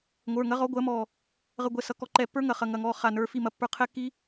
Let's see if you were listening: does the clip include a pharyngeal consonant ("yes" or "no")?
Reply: no